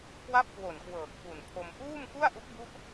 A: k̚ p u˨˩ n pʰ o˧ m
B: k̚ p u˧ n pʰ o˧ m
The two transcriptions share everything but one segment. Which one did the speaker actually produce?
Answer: A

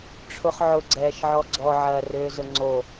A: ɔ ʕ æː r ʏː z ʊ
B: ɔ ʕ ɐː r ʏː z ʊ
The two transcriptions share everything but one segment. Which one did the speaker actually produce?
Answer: B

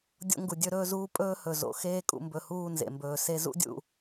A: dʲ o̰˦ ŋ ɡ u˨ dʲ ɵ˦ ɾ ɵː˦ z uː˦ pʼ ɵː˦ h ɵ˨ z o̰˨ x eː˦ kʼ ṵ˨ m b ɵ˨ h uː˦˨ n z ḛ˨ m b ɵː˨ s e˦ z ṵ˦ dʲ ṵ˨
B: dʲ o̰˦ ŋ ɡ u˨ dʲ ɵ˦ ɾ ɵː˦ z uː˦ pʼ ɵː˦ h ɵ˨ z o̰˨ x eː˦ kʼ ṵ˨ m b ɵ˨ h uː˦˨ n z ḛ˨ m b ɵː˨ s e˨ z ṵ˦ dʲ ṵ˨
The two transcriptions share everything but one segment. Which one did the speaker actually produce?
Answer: A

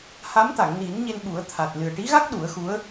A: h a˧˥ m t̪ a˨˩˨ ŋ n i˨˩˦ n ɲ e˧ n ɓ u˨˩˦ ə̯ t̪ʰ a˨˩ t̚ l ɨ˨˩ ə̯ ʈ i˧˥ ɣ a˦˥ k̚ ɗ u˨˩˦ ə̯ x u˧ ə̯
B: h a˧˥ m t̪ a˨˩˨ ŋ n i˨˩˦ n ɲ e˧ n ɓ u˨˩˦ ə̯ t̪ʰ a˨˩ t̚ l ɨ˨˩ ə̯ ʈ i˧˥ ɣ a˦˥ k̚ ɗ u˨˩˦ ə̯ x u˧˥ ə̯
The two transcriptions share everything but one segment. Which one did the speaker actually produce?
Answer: B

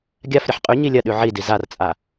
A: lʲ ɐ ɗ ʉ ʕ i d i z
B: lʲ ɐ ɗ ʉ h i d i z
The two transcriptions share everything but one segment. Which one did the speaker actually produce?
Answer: A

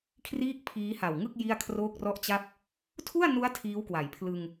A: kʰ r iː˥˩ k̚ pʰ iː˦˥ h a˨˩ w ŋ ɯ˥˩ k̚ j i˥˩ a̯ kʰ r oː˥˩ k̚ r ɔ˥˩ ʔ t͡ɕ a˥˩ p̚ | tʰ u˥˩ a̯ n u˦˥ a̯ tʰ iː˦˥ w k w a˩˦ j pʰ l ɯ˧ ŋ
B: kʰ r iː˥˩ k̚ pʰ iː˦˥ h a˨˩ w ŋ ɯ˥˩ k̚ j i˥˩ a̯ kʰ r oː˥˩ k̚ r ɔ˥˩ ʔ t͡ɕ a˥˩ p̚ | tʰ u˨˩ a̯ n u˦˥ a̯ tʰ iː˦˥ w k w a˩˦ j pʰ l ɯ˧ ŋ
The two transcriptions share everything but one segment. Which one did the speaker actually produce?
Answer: A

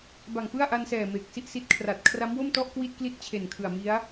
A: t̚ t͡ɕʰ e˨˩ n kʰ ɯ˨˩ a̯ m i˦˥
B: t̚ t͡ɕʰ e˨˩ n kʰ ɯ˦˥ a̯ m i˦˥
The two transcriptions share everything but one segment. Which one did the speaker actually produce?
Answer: A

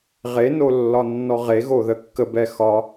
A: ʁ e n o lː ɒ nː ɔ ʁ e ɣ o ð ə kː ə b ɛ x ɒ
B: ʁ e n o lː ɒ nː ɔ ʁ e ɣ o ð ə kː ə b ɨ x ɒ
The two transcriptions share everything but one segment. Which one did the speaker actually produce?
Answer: A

